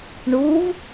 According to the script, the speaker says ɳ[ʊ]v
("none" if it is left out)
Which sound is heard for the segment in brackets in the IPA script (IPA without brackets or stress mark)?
u